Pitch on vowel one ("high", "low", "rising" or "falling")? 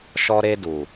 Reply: high